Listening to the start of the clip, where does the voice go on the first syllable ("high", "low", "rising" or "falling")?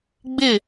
falling